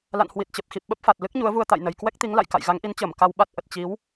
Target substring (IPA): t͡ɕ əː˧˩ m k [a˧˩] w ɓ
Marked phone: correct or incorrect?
incorrect